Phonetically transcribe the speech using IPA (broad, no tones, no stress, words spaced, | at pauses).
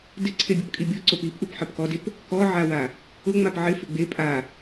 dɪ ǀʰebʲopkʼibʲo ǀopip ʔupħepkɔdep | kɔʕawa | ʊ ŋ͡mapʕɪfɪ ɡ͡be pʼa